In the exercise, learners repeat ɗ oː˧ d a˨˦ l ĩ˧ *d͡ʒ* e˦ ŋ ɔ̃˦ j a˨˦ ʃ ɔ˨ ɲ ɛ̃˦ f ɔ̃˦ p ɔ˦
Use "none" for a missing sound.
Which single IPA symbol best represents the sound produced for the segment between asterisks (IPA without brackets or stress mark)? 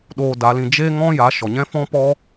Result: d͡ʒ